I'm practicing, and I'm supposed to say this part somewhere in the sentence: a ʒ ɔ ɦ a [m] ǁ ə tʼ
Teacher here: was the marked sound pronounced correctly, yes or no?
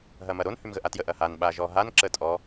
no